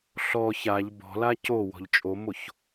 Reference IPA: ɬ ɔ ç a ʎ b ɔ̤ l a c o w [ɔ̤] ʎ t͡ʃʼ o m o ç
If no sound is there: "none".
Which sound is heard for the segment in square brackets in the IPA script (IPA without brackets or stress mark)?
ɔ̤